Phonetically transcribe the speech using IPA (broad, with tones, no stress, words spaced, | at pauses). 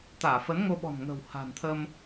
t̪aː˧˩fə˨˦nŋo˧ɓɔ̤˨˩n ŋə̤˨˩wha̤˨˩nt̪ʰə˧m